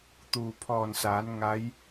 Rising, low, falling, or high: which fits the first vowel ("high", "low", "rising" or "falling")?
low